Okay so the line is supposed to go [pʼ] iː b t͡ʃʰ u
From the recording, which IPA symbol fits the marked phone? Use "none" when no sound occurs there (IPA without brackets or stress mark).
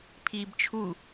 pʰ